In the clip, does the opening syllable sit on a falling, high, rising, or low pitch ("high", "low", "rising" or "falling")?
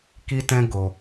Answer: high